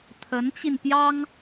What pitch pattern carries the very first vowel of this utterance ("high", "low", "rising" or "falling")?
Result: rising